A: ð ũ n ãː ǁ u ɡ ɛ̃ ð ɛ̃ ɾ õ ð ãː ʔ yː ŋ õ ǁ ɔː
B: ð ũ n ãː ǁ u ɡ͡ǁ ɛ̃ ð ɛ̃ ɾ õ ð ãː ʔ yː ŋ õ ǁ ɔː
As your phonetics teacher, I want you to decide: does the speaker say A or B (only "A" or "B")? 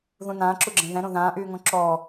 B